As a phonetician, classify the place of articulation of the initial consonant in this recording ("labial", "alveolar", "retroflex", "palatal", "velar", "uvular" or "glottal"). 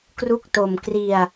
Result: velar